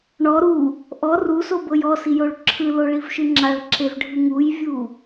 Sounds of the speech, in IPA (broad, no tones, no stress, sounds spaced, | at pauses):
ɳ ɔ ɾ u | ʔ ɔ r u s o b ɤ j ɔ s i j o ɭ ǁʰ ɯ l o ɭ i v ʃ ɯ ŋ͡ǁ a ɭ ǁ e v ɖʱ ɯ ŋ u j vʲ u